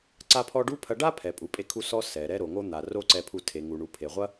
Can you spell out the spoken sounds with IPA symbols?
ǀ a˥ pʰ ɔ˥ ɖ u˥ pʰ ɐ˧ ɖ a˥ pʰ ɛ˩ pʼ u˩ pʼ e˧ kʰ u˧ s ɔ˧ s ɛ˩ ɾ ɛ˥ ɾ o˩ ŋ o˥ n̪ a˩ r o˥ ǀ ɛ˧ pʰ u˧ tʰ e˩ ŋ u˩ ɳ u˩ pʰ e˩ ʁʷ ɐ˥

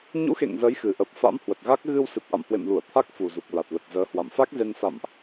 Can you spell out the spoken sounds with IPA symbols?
ɲ ṵ˧˥ x ḛ˧˨ ŋ z əː˨˦ j x ɨ˨˩ ʔ ə˨˩ p̚ f a̰˧˥ m h w ə˨˩ t̚ ɣ a˦˥ k̚ ɣ ɨ˧ w s ɨ˨˩ p̚ ʔ a̰˧˨ m h w ḛ˧˨ m l u˧˩ ə̯ t̪ʰ a˦˥ k̚ f u˨˩ z u˨˩ k̚ l a˨˩ t̚ l ə˨˩ t̚ z əː˨˦ h w a̰˧˨ m f a˦˥ k̚ z e˧ n s a̰˧˨ m ʔ

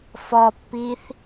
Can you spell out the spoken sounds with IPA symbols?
f ɔ pː i θ

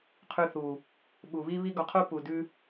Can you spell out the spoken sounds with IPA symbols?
qʰ ʉ˧ θ u˨ | ɓ u˨ β i˦ β i˦ ɡ ɔ˧ qʰ u˦ p u˨ d ʉ˧

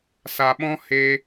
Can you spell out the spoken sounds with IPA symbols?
s a˨ ɓ ɔ̃˦ h e˧

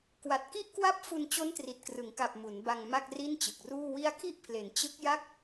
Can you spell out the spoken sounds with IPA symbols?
k w a˨˩ t̚ k i˦˥ ʔ k w a˦˥ p̚ f u˧ n t͡ɕ o˦˥ n t r i˨˩ t̚ k r ɯ˩˦ ŋ k a˨˩ p̚ m u˩˦ n b a˧ ŋ m a˥˩ k̚ r i˥˩ n t͡ɕ ɯ˨˩ k̚ r uː˥˩ w i˦˥ a̯ kʰ i˥˩ ʔ pʰ l e˩˦ n t͡ɕ ɯ˦˥ k̚ j a˥˩ k̚

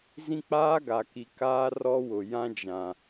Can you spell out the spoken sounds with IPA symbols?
z ĩ˦ k͡p aː˦ ɡ a˨ k i˨ k aː˦ r ɔ˦ w ʊ˨ j ã˦ d͡ʒ ã˨

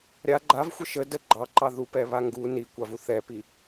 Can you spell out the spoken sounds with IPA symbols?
ɾʲ a ɡ͡ǃ a v xʷ ə ʃ ə d ə ɡ͡ǃ ɑ ǃ ɑ ð u p ɛ β a ŋ ɡ u n i kʷ ɑ v u θ ɛ p i

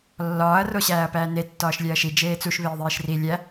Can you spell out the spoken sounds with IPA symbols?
lː ɒː ɐ̯ r o ɕ æː ɐ̯ p æː n e tː ɒː ʃ lʲ æ ɐ̯ ʃ i d͡ʒ eː t͡s u ʃ β eː ðˤ eː ʃ r i lʲ æ

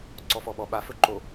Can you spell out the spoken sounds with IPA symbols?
ǀ ɔ f ɔ ɓ ɔ ɓ a f ɵ ǃ o

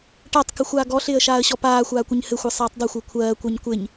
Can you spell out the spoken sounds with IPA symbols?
ʈ a tˤ k ɪ xʷ aː ɡ ɔ ɬ ɪː ə̯ ʃ aː ə̯ ɕ ɔ p aː xʷ aː kʷ ɪ ɲ h ɘ xʷ ɘ sˤ aː tˤ dˤ ɘ xʷ ɪ ə̯ kʷʰ ɜː kʷ ɜ ɲ kʷ ɪ ɲ

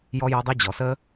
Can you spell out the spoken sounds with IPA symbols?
j ɔ˦ j ɔ˦ dˤ ɛ˦ d͡ʑ ɔ˨ s ə˦

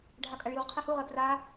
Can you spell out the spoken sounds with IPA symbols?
ɖʱ a kʼ a ɭ j u ʁ qʰ e h u ʁ ɜ p r a

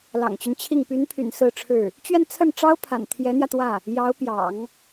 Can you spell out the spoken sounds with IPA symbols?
l ɑ̰˨˩ ŋ t͡ɕ y˦ n t͡ɕʰ i˥˩ ŋ p y˧˥ n pʰ y̰˨˩ n s ɹ̩˥˧ ʈ͡ʂʰ ɻ̩˥˩ | t͡ɕ ɥ ɛ˥˧ n t͡sʰ ə˥˩ n ʈ͡ʂ ɑ˥ ʊ̯ pʰ a̰˨˩ n t̪ʰ j ɛ˧˥ n̪ j ä˧ t̪ w ä˥˩ | j ɑ˧˥ ʊ̯ p j ɑ̰˨˩˦ ŋ

